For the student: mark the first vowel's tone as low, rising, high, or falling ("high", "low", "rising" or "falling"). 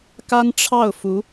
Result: high